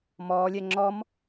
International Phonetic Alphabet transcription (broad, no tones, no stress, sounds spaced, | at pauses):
m ɔː lʲ ɛ ŋ͡ǁ ɔ m